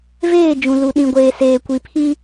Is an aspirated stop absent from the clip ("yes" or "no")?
no